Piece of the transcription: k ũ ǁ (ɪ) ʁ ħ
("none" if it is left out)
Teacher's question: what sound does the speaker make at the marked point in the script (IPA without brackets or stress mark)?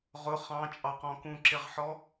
ɪ